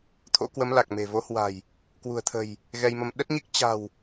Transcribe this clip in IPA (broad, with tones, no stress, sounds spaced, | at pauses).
t̪ʰ o̰˧˥ k w ə˨˦ m l a˨˩ k̚ m e̤˨˩ v o˨˦ h w a̤˨˩ j | k w ṳ˨˩ ə̯ t̪ʰ ə̤˨˩ j | ɣ ɛ˧ j m ə˧ m ɗ ə˦˥ t̚ ɲ i˦˥ k̚ t͡ɕ a̤˨˩ w